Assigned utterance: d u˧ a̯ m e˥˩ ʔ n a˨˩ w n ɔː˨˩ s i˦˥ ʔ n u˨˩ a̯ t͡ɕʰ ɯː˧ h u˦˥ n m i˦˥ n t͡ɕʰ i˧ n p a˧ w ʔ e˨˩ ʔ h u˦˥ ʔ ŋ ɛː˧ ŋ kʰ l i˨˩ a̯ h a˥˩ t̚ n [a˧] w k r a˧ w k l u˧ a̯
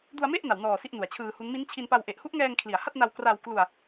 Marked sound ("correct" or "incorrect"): correct